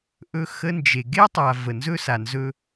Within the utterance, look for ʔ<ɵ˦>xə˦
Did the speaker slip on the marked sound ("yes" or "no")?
no